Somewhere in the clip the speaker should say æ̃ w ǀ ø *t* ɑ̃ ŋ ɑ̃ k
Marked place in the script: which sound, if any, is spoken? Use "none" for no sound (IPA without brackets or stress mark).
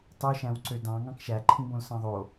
d